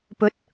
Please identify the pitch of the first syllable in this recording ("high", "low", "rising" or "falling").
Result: rising